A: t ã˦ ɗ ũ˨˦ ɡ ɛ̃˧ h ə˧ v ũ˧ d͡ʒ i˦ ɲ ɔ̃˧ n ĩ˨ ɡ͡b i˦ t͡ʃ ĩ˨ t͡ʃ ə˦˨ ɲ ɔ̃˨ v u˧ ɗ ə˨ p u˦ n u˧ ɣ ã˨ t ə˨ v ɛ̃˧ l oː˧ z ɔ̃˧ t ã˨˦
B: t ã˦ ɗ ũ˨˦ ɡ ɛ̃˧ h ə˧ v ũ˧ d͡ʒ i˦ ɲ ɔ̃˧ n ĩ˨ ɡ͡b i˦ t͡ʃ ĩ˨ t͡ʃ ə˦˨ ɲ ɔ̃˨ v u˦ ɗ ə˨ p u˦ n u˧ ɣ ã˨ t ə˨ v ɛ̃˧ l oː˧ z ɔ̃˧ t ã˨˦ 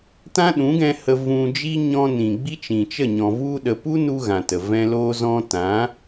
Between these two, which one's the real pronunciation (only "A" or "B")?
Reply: A